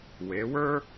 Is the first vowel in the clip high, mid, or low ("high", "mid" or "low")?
mid